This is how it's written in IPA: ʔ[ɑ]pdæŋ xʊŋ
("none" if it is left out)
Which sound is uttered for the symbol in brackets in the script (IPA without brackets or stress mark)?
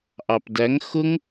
ɑ